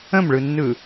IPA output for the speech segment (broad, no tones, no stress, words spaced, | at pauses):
ə̃mɭɯnːɯ